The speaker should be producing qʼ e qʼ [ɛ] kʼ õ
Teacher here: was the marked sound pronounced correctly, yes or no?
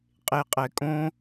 yes